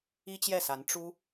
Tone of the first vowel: high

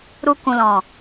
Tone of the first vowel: low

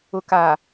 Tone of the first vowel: low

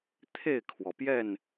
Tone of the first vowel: falling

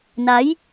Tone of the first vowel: rising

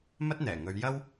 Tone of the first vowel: high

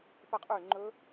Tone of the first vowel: falling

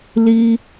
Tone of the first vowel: high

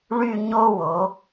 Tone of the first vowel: falling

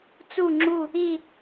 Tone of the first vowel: falling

